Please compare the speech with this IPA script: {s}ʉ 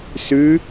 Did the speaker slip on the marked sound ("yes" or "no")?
no